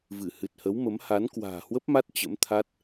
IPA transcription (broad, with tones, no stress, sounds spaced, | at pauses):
v ɨ˧˩ h ɨ˨˩ t̚ h ə˨˦ w m ə˨˦ m h a˨˦ n k w a̤ː˨˩ h w ə˦˥ p̚ m a˦˥ t̚ t͡ɕ ə̰˧˥ m t̪ʰ a˦˥ t̚